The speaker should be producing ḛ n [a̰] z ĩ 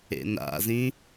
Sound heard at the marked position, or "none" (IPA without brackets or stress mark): a̰